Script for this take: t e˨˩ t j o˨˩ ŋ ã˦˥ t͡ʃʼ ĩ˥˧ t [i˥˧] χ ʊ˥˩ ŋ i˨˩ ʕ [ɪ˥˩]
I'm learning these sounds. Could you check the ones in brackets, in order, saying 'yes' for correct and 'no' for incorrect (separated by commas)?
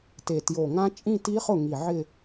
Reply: no, no